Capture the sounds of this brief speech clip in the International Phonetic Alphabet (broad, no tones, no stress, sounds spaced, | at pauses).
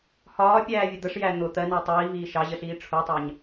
h ɒː pʲ æː vʲ ə d̪ ə ʂ j æ n̪ ʊ t̪ ɜ n æ tˤ iː v iː ʃ ɑ ʑ ə ɬ iː ʈ͡ʂʰ u tˤ ɑ ɲ